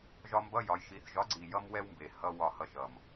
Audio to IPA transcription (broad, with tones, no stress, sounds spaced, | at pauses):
ʒ ɒ˧ m b ʌ˧˥˧ j ɒ˩˧ j ʃ i˩˧ θ ʒ ɒ˨˥ ɡ͡ǀ i˨˩ j ʌ˥ m w ɛ˥ w m b e˨˩ h ʌ˧˥˧ w ɒ˨˩ h ʌ˧ ʃ ʌ˨˩ m